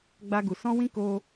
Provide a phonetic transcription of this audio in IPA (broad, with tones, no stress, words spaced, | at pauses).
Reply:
ɡ͡ba˧ɡu˨ sɔ̃˧ wĩ˦ ko˧